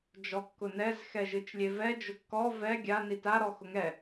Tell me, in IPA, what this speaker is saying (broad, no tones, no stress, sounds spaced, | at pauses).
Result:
d͡ʒ ɔ kː ʊ n ɛ z x ɛ ʒ ɨ t͡ʃ lʲ e v ɛ d͡ʒ ʊ kː ɔ v ɛ ɡʲ a n i t a ɾ ɔ x ʊ ŋ ɛ